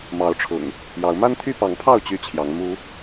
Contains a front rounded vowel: yes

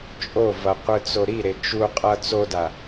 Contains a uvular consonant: yes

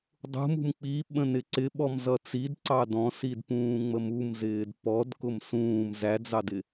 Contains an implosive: yes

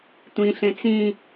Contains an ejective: no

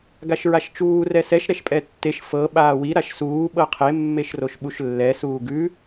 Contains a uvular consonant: yes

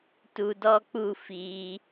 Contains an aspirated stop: no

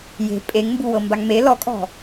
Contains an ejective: yes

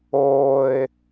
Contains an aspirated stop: no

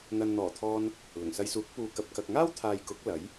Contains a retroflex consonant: no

